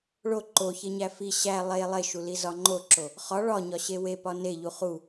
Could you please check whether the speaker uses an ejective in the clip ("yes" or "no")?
no